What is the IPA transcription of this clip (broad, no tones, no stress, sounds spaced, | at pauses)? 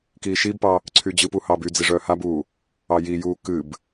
k iː ʃ i b p ɑ | ǀʰ y d͡ʑ ɨ p u h ɑ b y d͡z i ʐ œː h a b uː | ɑ j i j uː k ɨ b